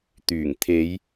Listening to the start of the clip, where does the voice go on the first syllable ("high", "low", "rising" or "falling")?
low